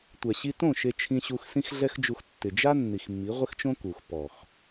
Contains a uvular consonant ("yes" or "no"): yes